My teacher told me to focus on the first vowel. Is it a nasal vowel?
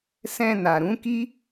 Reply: yes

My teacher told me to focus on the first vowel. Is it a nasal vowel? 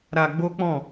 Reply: no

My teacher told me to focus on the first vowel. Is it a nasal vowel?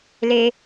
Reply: no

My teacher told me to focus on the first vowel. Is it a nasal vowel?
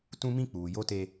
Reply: yes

